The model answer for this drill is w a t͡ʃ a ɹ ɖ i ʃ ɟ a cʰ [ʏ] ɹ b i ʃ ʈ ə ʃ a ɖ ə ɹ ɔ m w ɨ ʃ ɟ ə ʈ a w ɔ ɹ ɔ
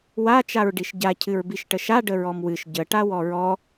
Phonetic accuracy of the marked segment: incorrect: ɨ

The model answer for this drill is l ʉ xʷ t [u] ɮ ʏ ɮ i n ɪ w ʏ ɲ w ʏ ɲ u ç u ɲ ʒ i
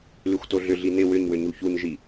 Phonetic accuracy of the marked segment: incorrect: o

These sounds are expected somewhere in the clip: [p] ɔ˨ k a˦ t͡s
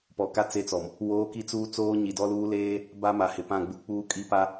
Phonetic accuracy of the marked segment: correct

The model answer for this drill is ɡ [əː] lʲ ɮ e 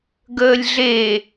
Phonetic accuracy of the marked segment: correct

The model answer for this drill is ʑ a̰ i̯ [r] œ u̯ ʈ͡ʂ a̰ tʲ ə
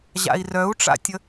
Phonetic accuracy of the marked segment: correct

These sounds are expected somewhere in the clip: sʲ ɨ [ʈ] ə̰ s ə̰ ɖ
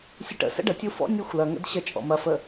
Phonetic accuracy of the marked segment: correct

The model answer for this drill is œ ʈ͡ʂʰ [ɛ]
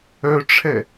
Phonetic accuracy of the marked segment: correct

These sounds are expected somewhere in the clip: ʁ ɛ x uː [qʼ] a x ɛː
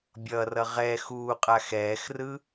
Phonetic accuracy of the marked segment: correct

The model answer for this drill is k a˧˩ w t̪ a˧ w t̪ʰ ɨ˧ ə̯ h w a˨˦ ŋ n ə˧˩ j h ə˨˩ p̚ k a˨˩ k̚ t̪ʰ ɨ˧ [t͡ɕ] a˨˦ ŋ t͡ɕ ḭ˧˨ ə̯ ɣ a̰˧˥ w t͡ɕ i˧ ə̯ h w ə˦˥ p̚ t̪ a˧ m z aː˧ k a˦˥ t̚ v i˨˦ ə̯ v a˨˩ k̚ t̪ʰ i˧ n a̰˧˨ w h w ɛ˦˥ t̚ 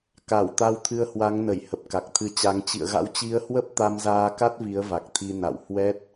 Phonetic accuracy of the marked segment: correct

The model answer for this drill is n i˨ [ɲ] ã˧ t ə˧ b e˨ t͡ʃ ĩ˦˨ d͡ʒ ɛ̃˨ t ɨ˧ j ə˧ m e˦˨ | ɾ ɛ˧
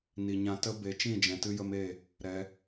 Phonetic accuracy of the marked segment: correct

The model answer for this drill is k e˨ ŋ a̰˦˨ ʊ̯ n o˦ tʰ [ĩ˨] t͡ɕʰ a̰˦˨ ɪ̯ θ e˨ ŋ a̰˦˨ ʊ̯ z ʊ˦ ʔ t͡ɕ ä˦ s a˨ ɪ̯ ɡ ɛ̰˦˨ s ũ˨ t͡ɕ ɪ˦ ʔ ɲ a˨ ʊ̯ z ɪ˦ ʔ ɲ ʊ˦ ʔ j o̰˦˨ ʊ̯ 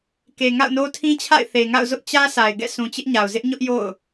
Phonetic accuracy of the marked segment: incorrect: ĩ˦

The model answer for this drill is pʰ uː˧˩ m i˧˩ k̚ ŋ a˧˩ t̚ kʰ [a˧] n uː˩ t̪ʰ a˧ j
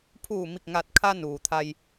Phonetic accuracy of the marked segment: correct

